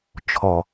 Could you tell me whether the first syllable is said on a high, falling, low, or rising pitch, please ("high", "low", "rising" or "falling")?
low